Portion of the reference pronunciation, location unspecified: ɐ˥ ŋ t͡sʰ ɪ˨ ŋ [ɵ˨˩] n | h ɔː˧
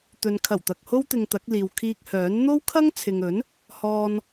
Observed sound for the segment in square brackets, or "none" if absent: ɵ˨˥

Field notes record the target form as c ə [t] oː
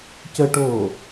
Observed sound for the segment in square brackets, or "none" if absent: ʈ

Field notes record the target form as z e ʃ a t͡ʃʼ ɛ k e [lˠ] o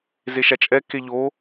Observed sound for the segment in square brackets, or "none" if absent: ʎ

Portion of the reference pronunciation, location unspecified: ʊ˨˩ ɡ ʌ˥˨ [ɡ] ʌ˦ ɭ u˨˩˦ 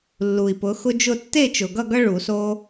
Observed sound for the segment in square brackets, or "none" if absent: ɡ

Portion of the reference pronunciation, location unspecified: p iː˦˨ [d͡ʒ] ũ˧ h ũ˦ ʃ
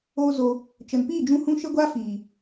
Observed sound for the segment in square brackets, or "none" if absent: d͡ʒ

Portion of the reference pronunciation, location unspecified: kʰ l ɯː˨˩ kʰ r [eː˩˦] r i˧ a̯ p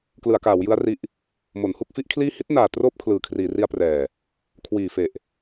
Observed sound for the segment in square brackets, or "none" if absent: iː˩˦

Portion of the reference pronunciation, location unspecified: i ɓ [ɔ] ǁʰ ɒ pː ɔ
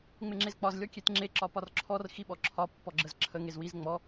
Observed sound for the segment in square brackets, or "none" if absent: ɔ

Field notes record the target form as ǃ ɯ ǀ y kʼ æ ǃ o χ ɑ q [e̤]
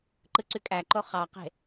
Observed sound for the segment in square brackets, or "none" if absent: e̤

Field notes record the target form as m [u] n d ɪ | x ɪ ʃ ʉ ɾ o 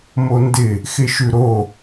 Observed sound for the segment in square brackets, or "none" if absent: o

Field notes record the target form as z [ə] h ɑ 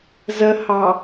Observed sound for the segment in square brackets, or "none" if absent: ə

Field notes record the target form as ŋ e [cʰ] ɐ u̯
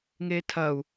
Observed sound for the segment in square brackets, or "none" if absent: tʰ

